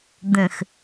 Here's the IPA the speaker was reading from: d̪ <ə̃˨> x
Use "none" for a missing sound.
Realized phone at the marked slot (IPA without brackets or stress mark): ə̃˨